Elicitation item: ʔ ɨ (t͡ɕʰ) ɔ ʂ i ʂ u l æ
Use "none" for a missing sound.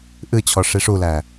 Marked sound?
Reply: t͡ɕʰ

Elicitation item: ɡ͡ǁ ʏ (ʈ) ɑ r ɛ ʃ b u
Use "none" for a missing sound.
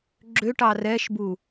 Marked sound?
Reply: ʈ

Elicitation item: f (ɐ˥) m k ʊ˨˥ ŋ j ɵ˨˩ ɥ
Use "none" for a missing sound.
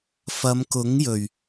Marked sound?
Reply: ɐ˨˧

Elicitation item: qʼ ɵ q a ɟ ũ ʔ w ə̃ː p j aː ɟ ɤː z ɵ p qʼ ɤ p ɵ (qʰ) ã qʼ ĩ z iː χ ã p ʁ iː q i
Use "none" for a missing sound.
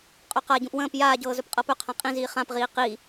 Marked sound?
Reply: qʰ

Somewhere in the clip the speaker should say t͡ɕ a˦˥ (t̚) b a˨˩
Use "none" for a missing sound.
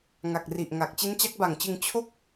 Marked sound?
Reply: k̚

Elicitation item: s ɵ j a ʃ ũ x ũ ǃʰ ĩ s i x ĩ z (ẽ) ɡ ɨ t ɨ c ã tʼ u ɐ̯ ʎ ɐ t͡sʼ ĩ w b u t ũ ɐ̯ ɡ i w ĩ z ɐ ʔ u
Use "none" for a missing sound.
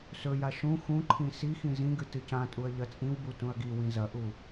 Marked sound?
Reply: ĩ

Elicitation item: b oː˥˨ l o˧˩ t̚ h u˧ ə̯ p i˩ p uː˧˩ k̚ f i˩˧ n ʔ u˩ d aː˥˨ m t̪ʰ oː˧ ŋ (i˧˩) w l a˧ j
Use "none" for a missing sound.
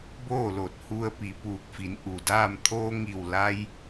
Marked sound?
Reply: i˧˩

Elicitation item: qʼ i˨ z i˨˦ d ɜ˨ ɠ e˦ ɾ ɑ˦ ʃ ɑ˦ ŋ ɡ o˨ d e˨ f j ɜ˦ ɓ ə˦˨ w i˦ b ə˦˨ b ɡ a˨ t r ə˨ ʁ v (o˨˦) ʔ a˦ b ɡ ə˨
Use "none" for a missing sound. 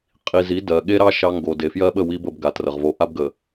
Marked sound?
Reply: o˨˦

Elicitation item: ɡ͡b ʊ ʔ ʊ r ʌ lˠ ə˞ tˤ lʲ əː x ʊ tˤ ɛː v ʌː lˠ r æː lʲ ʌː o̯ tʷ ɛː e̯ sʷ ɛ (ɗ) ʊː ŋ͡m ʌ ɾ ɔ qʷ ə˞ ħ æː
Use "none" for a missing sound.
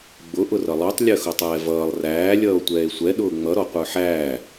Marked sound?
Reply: ɗ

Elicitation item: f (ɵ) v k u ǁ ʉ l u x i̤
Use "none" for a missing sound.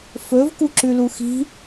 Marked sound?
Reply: ɵ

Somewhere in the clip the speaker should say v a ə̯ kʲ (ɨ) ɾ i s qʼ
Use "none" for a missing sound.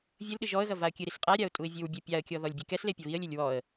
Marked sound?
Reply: ɨ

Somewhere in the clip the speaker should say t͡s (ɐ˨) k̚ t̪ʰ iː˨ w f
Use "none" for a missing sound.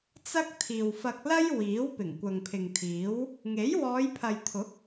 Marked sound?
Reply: ɐ˥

